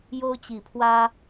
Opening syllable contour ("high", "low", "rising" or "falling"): high